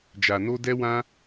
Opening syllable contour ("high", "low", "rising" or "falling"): low